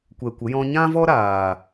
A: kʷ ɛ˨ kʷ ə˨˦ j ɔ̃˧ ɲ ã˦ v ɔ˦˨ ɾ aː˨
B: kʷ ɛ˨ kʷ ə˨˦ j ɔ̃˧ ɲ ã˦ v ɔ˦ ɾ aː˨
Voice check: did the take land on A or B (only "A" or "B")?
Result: B